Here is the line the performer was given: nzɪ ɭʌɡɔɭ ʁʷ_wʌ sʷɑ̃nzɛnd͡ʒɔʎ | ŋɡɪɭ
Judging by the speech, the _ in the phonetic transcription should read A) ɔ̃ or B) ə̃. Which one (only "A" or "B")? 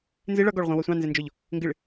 B